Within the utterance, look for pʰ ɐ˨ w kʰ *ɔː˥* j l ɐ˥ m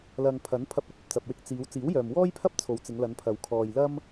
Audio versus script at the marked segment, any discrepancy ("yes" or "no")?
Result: yes